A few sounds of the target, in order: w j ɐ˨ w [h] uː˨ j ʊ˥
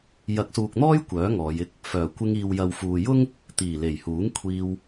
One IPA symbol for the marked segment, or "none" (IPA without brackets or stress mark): f